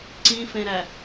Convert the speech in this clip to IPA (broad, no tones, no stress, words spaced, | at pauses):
ǀĩfẽɾæ